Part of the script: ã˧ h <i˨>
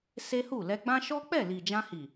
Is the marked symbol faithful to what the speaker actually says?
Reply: yes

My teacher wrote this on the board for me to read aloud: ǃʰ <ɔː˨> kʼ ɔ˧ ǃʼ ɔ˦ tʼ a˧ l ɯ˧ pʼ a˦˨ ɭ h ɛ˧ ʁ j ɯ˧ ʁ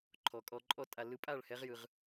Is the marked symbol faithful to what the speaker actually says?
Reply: no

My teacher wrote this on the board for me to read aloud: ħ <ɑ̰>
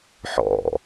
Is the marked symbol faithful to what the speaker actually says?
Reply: no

